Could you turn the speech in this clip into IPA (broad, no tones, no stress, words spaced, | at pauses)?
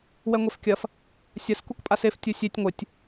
wɛŋʷefkʲɐf | sʲɐs kukpʼasef tʲusʲetʲ ŋʷɘtʲ